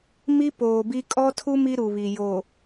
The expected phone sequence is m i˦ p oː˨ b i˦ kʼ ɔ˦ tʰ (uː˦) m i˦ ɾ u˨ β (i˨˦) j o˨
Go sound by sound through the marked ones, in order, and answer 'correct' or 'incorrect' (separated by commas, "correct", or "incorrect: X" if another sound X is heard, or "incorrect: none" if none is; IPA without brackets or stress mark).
incorrect: u˦, incorrect: i˨